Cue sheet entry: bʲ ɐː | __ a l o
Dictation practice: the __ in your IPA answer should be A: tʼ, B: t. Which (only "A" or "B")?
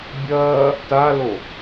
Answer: B